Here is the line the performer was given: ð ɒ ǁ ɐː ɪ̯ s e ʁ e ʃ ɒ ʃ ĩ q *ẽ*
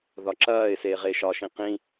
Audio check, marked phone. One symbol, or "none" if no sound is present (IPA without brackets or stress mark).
ĩ